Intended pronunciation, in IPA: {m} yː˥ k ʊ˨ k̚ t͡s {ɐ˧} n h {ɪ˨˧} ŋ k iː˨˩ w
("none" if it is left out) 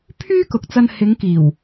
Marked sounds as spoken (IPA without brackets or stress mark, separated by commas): pʰ, ɐ˧, ɪ˨˧